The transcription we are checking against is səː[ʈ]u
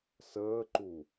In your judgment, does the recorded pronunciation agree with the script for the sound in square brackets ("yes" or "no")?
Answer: no